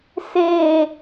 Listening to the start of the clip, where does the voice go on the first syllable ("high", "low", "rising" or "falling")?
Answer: falling